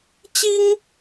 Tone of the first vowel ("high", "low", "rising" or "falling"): high